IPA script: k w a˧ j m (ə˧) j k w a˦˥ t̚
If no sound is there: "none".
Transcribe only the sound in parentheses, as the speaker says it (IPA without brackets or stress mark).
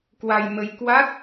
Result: ə˧